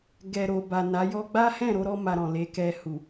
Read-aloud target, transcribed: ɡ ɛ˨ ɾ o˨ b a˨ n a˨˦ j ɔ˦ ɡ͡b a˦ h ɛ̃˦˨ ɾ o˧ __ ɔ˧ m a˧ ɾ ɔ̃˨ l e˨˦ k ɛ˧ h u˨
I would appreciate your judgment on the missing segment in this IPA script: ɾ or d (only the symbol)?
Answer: ɾ